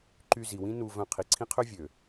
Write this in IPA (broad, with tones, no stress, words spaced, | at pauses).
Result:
ǃy˧zi˨wĩ˦ nu˧ vœ̃˧ qʰi˨ǀʰĩ˦qʰø˦ vʲø˨